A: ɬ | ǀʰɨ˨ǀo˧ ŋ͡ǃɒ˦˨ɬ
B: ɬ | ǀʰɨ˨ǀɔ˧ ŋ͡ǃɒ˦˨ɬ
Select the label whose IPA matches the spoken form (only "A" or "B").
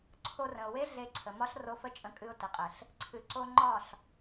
A